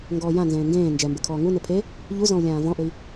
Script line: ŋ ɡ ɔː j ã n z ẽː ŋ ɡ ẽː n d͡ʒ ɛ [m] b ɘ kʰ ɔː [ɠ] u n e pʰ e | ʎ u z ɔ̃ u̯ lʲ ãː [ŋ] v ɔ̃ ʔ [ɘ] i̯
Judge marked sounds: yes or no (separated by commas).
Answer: yes, no, no, yes